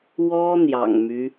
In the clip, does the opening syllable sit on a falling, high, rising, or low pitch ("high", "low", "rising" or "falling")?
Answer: high